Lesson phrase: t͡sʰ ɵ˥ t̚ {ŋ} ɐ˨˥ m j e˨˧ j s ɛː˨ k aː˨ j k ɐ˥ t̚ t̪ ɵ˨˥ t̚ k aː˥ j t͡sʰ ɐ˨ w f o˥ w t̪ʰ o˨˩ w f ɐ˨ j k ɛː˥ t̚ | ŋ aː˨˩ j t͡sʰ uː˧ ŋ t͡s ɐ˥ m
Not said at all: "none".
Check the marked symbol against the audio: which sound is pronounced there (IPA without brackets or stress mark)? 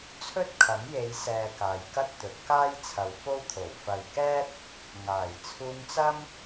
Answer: kʰ